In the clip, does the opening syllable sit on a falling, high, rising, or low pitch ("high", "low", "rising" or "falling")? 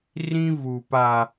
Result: high